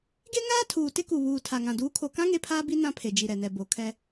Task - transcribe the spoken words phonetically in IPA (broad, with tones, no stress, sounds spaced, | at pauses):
ɡ e˦ ŋ aː˦ tʰ uː˨ t ɪ˦ k u˨ β uː˨ tʰ a˨ ŋ ã˨ d uː˨˦ kʰ o˨ k ã˦ ŋ e˦ pʰ aː˦ b i˦ n ã˦ pʰ e˨ d͡ʒ i˨ ɾ ɛ˨ n ɛ˨ b o˨ kʰ ɛ˦